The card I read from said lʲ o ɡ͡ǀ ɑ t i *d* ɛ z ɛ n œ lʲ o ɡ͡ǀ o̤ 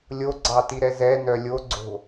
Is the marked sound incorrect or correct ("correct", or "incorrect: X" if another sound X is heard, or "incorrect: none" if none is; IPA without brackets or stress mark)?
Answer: incorrect: ɾ